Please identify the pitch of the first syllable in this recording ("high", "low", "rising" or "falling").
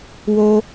high